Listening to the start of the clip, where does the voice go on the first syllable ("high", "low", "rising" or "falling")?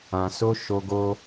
low